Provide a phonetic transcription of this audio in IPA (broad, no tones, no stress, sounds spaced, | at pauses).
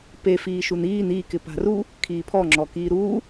p e f iː ʃ u n iː n i k ɪ p a̤ r u | kʰ iː pʰ ɔ ŋ͡ǁ ɔ k iː ɾ u